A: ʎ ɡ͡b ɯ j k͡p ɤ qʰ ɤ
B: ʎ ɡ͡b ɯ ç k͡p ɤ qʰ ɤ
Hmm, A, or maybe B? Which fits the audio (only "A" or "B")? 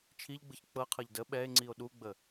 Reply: B